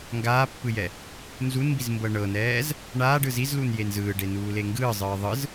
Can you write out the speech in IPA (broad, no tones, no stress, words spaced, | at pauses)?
ŋɡaːpːɯjɛ | nzunmbizmbɤ ɳɤnɛːz | ɳaːɖɯ zizlunjen zɯːɖenuːle ŋɡɯːzˤɯː ðˤɯz